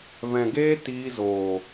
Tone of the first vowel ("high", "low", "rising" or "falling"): low